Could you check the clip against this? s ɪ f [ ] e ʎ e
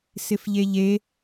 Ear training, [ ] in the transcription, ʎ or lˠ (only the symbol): ʎ